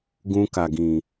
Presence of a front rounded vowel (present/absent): absent